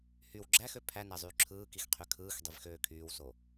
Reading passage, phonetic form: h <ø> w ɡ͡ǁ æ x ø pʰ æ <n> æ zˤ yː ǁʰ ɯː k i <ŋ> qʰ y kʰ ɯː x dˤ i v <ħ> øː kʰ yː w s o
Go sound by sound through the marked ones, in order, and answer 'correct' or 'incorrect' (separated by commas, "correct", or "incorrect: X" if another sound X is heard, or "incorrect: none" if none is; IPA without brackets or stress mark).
incorrect: y, correct, incorrect: x, incorrect: x